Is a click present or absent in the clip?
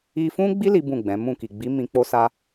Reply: absent